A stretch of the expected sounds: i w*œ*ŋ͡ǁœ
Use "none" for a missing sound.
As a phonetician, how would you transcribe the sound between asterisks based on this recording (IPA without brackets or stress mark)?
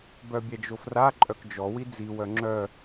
œ